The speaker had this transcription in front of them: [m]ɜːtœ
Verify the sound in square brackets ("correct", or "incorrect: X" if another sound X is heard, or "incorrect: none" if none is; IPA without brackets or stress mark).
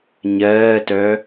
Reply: incorrect: ɲ